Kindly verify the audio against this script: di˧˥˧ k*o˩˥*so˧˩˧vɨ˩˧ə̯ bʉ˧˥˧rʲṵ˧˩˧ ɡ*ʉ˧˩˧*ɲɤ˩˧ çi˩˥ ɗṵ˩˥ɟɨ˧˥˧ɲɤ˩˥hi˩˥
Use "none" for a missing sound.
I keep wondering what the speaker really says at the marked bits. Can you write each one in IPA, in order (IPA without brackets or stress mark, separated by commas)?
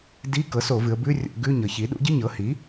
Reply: ɤ˩˥, ʉ˧˥˧